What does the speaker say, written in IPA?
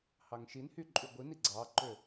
h ɑ ŋ ʃ i n h y ǃʼ y ɡʷ i n i ɡ͡ǀ ɑ ǃ ø

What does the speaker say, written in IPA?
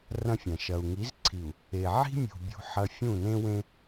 r ɐ̃˦ fʲ ɐ̃˨ ʃ ɐ˨ u̯ ŋ i˨˦ z ǀʰ i˨ u̯ | e˨ ʕ i̤˦ mʲ ṳ˨ bʲ ṳ˦ ħ ɐ˦ fʲ ũ˦˨ n ẽ˦ w ẽ˦

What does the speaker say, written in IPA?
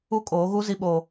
u˦ kʼ oː˨˦ ɣ u˦ z i˦ ɓ oː˦

